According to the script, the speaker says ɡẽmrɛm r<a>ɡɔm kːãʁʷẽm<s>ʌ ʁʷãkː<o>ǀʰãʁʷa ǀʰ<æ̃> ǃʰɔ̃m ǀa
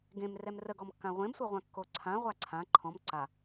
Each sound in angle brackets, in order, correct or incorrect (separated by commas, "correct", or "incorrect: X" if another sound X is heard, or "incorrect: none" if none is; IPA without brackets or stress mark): incorrect: ə, incorrect: sʷ, correct, incorrect: ã